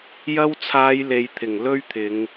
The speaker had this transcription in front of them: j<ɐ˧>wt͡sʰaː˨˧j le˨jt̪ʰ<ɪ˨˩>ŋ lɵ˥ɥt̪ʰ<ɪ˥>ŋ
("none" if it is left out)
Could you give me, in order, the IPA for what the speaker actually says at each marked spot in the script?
ɐ˧, ɪ˨˩, ɪ˨˧

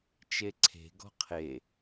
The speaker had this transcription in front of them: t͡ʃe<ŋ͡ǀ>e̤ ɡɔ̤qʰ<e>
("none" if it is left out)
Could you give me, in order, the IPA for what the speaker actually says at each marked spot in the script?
ǀʰ, e

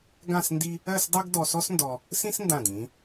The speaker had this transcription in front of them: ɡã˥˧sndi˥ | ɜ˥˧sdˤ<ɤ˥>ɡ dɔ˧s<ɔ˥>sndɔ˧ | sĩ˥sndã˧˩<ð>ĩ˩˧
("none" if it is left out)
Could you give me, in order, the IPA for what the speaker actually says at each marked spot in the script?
ɤ˥, ɔ˥, d

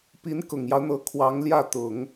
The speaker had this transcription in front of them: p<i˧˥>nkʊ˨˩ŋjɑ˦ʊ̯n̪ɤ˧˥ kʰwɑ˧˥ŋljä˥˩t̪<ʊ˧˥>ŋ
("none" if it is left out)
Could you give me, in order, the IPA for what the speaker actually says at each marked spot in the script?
i˧˥, ʊ˨˩˦

